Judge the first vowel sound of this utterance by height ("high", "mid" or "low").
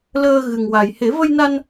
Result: mid